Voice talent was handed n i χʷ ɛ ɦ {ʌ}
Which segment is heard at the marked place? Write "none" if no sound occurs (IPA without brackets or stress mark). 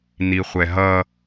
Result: ʌ